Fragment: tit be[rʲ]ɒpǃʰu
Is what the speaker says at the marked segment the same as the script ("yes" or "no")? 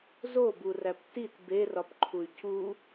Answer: no